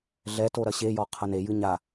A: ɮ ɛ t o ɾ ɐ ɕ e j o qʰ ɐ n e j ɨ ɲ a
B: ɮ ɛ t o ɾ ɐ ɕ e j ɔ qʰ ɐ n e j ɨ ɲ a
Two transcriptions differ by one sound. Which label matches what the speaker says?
B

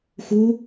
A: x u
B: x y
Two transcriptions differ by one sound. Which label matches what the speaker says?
A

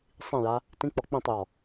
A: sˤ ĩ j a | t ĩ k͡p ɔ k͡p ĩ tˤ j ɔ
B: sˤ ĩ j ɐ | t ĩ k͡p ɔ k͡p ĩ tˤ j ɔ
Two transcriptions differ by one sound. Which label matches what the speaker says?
A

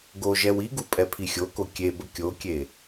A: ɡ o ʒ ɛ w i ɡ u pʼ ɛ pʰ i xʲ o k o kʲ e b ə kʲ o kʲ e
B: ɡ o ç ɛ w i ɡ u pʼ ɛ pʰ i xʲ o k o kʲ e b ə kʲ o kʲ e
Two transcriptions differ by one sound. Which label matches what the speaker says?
A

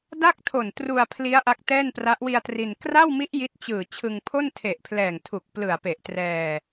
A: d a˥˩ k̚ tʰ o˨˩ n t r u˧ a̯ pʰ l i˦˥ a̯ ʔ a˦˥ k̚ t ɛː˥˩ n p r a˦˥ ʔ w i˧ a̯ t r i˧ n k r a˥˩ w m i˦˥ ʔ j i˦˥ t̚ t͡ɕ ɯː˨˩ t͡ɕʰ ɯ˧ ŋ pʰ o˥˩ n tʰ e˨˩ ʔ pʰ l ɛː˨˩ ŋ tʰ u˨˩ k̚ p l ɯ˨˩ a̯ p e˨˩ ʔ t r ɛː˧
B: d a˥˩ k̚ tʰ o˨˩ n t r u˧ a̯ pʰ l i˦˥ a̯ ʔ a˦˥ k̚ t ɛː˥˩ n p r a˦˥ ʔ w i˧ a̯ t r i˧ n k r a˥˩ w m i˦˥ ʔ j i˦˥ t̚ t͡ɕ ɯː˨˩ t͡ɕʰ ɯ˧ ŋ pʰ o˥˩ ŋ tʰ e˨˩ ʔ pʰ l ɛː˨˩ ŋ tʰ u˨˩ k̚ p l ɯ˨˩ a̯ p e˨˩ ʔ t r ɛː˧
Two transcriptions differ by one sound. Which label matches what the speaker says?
A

